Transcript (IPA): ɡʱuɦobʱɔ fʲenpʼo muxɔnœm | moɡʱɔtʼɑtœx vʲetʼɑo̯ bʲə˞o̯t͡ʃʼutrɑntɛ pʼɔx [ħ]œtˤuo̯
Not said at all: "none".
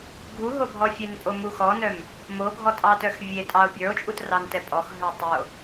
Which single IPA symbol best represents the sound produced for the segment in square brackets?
ɦ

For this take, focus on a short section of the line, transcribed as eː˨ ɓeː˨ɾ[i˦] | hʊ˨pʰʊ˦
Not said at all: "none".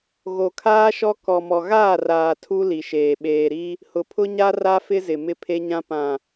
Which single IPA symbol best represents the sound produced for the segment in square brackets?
i˦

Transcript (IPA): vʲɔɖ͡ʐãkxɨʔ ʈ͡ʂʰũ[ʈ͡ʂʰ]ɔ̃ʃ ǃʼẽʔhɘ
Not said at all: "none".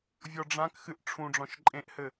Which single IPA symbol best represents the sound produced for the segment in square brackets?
ɖ͡ʐ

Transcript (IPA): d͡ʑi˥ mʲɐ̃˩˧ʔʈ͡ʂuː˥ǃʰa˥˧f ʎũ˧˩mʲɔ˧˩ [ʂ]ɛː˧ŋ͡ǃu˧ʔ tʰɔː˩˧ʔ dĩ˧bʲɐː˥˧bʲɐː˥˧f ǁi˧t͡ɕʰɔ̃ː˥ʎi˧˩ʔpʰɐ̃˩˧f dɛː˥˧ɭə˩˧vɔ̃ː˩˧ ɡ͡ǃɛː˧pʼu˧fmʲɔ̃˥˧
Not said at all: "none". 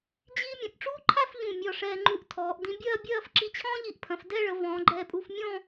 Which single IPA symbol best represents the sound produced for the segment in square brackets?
ʂ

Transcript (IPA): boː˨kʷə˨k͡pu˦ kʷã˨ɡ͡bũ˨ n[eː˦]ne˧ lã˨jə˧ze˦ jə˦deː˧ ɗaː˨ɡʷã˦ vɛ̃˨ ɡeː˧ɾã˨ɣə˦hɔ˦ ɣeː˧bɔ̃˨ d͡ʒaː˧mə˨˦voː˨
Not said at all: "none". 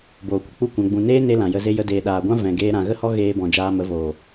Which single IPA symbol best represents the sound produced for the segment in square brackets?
eː˦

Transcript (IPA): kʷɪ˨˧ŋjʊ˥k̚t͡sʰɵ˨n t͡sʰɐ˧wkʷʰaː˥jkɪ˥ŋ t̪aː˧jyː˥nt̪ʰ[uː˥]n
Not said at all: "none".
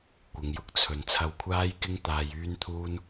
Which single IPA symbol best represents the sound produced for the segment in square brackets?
uː˥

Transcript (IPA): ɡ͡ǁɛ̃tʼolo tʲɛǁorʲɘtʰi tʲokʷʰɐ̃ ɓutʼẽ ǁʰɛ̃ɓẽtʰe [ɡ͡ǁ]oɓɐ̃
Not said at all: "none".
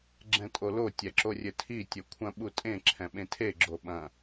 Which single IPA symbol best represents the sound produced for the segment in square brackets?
ɡ͡ǁ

